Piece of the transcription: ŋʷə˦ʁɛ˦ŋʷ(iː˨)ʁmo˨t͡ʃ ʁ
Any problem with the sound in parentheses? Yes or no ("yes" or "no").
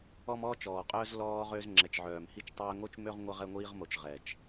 yes